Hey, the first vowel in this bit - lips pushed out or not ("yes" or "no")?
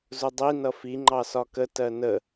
yes